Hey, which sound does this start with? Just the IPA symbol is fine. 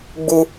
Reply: ɡ͡b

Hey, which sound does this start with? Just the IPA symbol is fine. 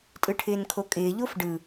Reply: tʼ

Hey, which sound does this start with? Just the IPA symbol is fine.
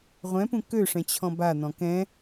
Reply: ʁʷ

